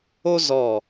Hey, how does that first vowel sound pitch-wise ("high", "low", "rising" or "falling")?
high